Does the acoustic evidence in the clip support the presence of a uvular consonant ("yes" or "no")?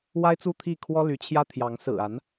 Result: no